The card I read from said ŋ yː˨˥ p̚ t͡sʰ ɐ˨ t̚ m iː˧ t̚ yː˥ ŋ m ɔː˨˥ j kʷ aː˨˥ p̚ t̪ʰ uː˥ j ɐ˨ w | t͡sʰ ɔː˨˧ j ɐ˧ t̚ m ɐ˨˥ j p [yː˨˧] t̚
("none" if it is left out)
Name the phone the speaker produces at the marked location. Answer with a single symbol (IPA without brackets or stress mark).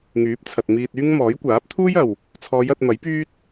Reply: yː˥